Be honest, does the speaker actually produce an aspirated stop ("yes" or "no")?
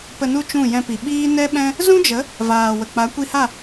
no